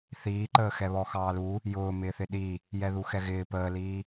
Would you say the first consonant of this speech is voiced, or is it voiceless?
voiceless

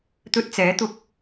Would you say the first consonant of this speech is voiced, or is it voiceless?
voiceless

